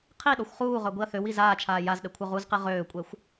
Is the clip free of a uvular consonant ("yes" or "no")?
no